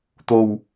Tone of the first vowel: low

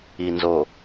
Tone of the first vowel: low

